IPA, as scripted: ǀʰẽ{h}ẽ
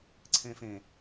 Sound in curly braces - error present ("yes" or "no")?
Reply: yes